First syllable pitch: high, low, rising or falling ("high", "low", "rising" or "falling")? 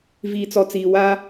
low